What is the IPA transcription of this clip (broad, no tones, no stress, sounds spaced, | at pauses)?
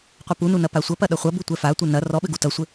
qʷ ɐ p u n u n ɐ p a sʷ ɐ p ɐ ɗ ɐ χʷ ɐ b u tʷ ɛ f a tʷ ɘ n ɐ r ɔ ɓ ɘ ɡ u t ɐ sʷ ɘ